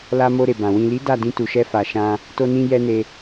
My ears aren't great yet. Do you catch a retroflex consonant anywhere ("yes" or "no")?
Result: no